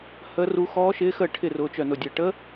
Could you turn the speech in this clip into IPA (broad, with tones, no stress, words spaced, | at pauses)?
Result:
hə˦˥ru˦˥ xɔː˦˥ʃɪː˦˥xəː˥˨ ʈʰɪ˥˨ rʊː˦˥t͡ʃœ˥˨nʊ˥˨dʲəː˥˨ ʈə˦˥